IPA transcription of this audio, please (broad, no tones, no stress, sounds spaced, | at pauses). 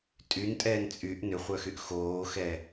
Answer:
tʼ y n tʼ ɛː n t͡sʼ y ʔ n ʏ χʷ œ x y ʔ x oː x ɛ